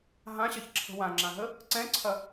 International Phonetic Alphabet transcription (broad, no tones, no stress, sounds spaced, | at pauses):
ɦ ã ɕ ɐ ç ǁʰ ə̤ w ã ŋ͡ǁ ã ɦ ə | ǀ ɛ̃ ǀʰ ɐ